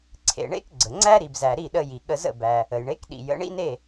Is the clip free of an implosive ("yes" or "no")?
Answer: no